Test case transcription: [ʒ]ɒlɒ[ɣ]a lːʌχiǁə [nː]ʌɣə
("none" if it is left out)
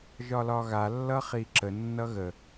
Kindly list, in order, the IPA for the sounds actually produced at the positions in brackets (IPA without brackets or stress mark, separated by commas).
ʒ, ɣ, nː